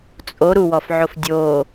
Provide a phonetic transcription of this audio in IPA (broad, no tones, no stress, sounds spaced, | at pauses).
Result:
t͡sʼ o ɾ u w ɔ f ʕ o f dʲ o